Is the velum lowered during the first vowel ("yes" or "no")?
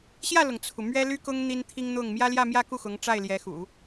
no